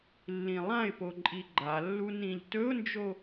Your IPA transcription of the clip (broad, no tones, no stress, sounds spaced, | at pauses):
lː ĩ lˠ ã ɪ̯ p o ǃʼ i ɡ͡ǃ a lː u n ĩ ʎ t ɵ ʊ̯ n d͡ʒ o